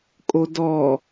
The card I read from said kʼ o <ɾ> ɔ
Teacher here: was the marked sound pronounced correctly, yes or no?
no